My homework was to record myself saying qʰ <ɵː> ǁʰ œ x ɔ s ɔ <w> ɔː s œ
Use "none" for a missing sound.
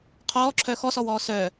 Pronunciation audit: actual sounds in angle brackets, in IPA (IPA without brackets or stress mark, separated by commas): ɔː, w